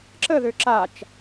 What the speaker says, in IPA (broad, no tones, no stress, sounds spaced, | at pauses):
ǁ ə ð ø ǁ a t͡ʃ